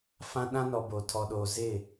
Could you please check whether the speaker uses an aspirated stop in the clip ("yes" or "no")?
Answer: yes